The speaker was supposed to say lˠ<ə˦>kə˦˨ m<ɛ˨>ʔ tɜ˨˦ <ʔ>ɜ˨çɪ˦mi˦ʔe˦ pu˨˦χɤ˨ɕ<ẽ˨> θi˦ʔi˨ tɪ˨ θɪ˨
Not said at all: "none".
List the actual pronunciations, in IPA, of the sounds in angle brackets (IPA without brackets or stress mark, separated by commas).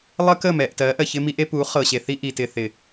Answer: ə˦, ɛ˨, ʔ, e˨